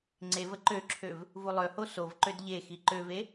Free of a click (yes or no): no